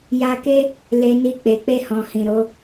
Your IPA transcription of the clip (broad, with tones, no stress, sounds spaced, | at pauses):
j a˧ k e˦ | l e˨ n i˧ k͡p e˨ k͡p e˧ h ɔ̃˨ h ĩ˨ ɾ o˨˦